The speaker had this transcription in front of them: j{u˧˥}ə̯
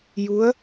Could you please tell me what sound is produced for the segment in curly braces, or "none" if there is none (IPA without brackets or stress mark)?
u˧˥